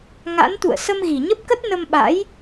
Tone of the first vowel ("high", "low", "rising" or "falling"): rising